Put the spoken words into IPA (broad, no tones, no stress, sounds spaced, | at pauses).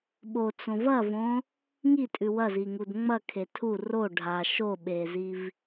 ɓ o t͡s õ v ɐ v õ | ŋ i tʼ ʉ w ɐ z i ŋ u d ŋ͡m ɐ kʰ e tʰ u r o ɖʱ a ʃ o ɓ e z i v